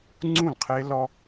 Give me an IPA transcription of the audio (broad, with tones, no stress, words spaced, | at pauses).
ŋ͡ǀũ˦˨lqʰe˦ lɔ˦